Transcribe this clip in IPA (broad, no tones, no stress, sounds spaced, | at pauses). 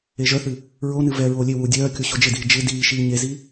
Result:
e ʒ œ θ ɨ | ɹ o n ɨ v ɛ ɹ oː lʲ e w uː dʲ œː kʲ o ɕ o d͡ʒ ɪ d iː d͡ʒ ɪ d iː ʃ iː ɲ e z i